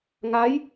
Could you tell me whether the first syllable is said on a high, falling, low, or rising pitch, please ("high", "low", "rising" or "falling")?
rising